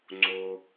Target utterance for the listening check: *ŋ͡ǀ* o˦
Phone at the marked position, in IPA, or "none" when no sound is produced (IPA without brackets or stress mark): ŋ͡ǀ